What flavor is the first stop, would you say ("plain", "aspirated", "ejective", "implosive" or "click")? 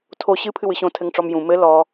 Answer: aspirated